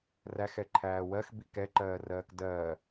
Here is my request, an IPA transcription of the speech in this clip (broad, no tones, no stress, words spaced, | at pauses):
ræxɛǃʰæː wɜxbi kɛǃɜːrɜːk dɜː